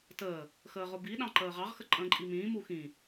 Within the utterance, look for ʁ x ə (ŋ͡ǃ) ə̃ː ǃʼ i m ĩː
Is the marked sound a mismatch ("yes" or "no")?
yes